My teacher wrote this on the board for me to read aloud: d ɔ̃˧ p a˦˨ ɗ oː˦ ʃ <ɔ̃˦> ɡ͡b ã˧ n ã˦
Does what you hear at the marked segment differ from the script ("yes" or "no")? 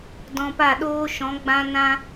yes